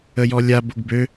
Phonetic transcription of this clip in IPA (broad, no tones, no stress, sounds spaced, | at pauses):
ə j ɔ lʲ a b o ɡ b ø